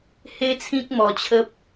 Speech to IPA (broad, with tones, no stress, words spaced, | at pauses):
he˦t͡sʰĩ˦k̚ mɔ˧t͡ɕʰə˦p̚